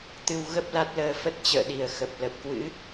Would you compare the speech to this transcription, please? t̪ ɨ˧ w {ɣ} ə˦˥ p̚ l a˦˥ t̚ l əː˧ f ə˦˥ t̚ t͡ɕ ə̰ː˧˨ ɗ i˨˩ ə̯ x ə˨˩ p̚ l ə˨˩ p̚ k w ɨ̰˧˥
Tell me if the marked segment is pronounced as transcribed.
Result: yes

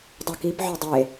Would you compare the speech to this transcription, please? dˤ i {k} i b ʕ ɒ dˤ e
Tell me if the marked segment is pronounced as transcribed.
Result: yes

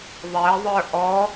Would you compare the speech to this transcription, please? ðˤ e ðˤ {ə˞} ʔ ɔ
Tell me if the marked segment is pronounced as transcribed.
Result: yes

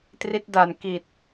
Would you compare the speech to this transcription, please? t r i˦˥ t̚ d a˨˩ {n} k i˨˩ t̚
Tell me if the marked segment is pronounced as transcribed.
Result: yes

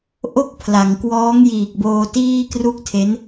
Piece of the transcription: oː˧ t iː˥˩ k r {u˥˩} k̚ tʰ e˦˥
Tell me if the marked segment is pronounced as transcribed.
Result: yes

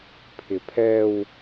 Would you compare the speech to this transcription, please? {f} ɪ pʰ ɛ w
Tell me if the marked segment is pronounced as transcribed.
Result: no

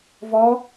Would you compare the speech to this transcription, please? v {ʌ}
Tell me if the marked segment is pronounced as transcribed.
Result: no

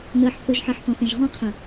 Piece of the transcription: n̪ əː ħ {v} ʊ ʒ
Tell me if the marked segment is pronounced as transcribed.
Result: no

